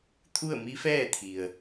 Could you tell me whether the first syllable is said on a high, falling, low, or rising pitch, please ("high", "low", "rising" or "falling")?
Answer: falling